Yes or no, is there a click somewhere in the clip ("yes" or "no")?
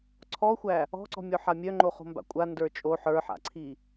yes